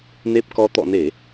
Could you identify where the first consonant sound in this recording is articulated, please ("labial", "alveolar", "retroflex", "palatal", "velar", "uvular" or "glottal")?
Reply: alveolar